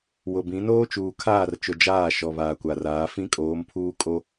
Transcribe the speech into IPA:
wʊ˨bĩ˨˦ noː˦t͡ʃuː˨kʰaː˦˨rt͡ʃʊ˨ d͡ʒaː˦˨ʃɔ˨ βaː˨kʷa˨raː˨˦ fĩ˦kʼoː˨˦mpʰuː˦ kʼo˦

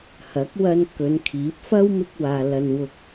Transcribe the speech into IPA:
hɐ˨˥k̚wɐ˧n kɵ˨˧nkʰiː˨˥p̚ fɐ˥wmɪ˧k̚waː˨ lɐ˨n wʊ˧k̚

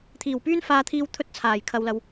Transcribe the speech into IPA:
t̪ʰiː˨˩wpyː˥nfaː˧t̪ʰiː˧w t̪ʰɵ˥t̚t͡sʰaː˨˩j kʰɐ˨wlɐ˨w

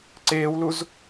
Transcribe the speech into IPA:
ǀeːwluz

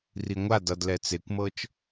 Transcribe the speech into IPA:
riŋʷad ʌd lɛt͡sekʷmɤt͡ʃ

